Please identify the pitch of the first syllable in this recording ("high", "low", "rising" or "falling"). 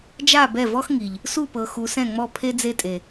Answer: falling